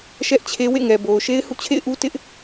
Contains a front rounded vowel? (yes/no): no